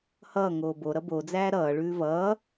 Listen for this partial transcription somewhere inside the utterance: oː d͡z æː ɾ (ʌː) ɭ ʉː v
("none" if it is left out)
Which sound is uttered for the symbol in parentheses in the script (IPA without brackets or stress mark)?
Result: ʌː